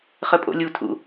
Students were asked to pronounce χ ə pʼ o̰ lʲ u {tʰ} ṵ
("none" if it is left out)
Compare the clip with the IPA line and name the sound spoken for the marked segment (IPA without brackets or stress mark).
tʰ